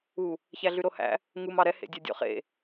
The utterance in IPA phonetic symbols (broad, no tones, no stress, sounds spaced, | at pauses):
u | ç æ ɮ y ɾ o h æ̰ | ŋ u m ɑ ɾ ɛ h ḛ dʲ œ dʲ ɔ̰ χ ḛ